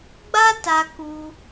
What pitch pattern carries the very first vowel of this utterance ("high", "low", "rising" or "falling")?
high